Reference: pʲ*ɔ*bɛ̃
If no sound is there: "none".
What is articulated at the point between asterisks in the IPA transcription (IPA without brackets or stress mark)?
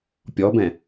ɔ